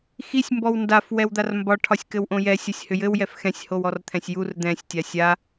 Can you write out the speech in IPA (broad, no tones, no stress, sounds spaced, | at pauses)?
x i sʲ m b ɔ w n d a f w ɛ w d̪ a r m b ɒ ʈʰ ɒ sʲ k ɘ w ʔ õ j ɛ sʲ ɒ sʲ h ʏ j ɘ w j ɛ f x ɛ̃ sʲ h o w ɔ r t̪ʰ ɛ̃ sʲ j u r d̪ ɛ̃ sʲ tʲ a sʲ a